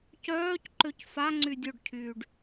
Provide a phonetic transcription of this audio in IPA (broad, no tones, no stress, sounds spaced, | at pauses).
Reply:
c œː c ǃ ø c f a ŋ͡ǀ y dʲ o ɖ cʰ yː ɖ